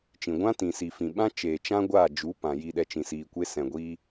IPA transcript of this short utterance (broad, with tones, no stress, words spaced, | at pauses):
t͡ʃĩ˨ɡʷã˦ tĩ˨si˨fĩ˨ɓã˦ t͡ʃeː˨t͡ʃã˦ ɡʷaː˦˨d͡ʒu˨˦ pã˨ji˧ɗɛ˧t͡ʃĩ˨ siː˨kʷe˧ sɛ̃˨ ɡʷiː˧